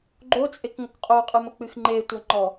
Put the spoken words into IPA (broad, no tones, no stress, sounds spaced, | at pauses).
ɡ͡ǃ o t͡sʼ e k ŋ o k qʼ o qʼ ɨ m ɘ k͡p ɨ x ŋ͡ǃ e tʷ ɐ ŋ͡ǃ ɔ